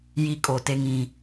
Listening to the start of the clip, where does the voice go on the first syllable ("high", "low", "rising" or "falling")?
low